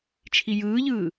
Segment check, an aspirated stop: present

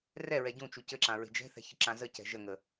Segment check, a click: present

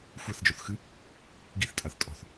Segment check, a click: absent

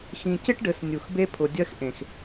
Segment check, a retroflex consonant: present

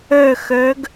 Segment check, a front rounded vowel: present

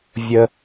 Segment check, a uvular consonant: absent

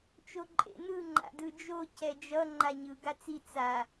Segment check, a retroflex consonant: absent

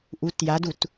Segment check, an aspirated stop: absent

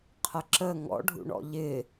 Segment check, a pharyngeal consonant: absent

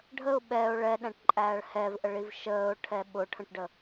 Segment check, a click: present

